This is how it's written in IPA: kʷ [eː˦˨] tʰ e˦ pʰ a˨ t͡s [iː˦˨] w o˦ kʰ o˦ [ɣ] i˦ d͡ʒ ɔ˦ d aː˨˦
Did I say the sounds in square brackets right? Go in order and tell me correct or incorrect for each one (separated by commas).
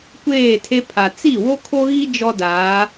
correct, incorrect, correct